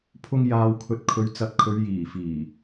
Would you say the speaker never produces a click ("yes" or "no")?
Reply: yes